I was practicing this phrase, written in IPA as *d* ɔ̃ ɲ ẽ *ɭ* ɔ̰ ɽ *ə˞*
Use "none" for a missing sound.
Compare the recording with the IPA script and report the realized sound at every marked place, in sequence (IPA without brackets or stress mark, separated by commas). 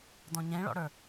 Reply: d, ɭ, ə˞